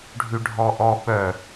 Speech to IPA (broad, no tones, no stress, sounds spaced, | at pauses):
ɖʱ y ɖʱ ɔ ʔ ɔ ɓ œ